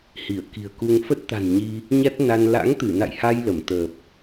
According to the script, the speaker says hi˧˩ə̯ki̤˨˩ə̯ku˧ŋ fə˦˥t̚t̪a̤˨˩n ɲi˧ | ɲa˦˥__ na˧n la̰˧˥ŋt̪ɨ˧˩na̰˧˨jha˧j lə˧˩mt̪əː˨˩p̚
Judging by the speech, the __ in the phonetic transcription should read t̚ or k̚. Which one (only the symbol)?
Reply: t̚